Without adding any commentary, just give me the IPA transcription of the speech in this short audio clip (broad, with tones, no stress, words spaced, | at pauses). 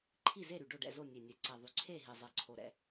ǃʰi˥˨ze˥˨ɾy˨˩ ɖo˥˨ɖɛ̰˥˨zo˥˨ nʲe˨˩nʲɛ˨˩ǀɛ˨˩ ðˤy˨˩ǀʰe˥˨ ɦi˨˩zˤe˨˩ǀʰo˨˩ ɾɛ̰˥˨